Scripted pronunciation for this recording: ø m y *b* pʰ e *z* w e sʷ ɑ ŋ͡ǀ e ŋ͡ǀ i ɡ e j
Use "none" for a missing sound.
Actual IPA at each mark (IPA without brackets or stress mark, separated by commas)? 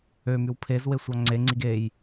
w, z